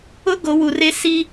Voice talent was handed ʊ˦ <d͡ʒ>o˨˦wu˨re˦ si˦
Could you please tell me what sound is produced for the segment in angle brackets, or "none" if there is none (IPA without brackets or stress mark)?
ɡ